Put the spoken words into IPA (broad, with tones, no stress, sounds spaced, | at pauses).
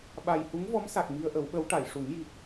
ɓ a˨˩ j h u˧˥ ŋ v ɔ˧˥ m s a˨˩ k̚ m i˧ ə̯ ʔ ə˨˩˦ w ɓ ə˧˥ w ʈ a˨˩˨ j ʂ u˨˩˦ ŋ j i˨˩ k̚